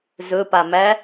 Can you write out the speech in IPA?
z ɵ p a m æ

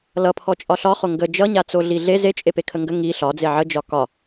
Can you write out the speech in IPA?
l ʌ pʰ ɔ t͡ʃʼ ɒ ɬ ɒ χ o ŋ ɡ ə d͡ʒ ʌ ɲ a t͡s o ɮ i ɮ e z e t͡ʃʼ e p e kʰ ə ŋ ɡ ə ŋ i ɬ ɒ d͡z e ʕ ə d͡ʒ ɒ k ɒ

